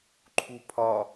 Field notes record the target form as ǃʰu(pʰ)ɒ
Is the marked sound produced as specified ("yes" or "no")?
yes